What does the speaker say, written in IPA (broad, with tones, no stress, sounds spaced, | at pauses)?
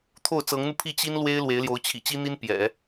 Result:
t̪ʰ o˥˩ ʊ̯ t͡s ɤ˧˥ ŋ n̪ u˧ pʰ i˥˩ t͡ɕ i˥ n l w e˥ ɪ̯ l w e˧˥ ɪ̯ l j o˧˥ ʊ̯ t͡ɕʰ ḭ˨˩ t͡ɕ i˥ n̪ i˥ n p j ɛ̰˨˩˦